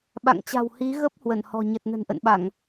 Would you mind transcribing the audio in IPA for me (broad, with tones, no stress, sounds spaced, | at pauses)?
ɓ a̰˧˨ ŋ t͡ɕ a̤˨˩ w h i˨˦ ɣ ə˦˥ p̚ h w ə˧˩ n h ɔ̤˨˩ ɲ ə˨˩ t̚ n ə̤˨˩ n ʔ ə̰˧˨ n ɓ a˧˩˨ ŋ